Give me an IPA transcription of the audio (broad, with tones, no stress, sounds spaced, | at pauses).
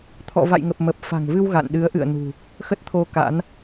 t̪ʰ ɔ̰˧˨ v a̰˧˨ j ŋ ə˨˩ p̚ m ə˨˩ p̚ f a̤˨˩ ŋ v ɨ˧ w ɣ a̰˧˨ n ɗ ɨ˨˦ ə̯ ʔ ɨ̰˧˨ ə̯ n ṳ˨˩ | x ə˦˥ t̚ t̪ʰ o˧ k a̰˧˥ n